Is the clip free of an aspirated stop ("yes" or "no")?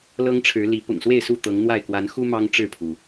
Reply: no